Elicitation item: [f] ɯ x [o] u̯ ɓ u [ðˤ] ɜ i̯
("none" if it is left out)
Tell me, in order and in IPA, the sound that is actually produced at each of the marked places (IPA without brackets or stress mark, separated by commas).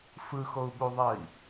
f, o, ðˤ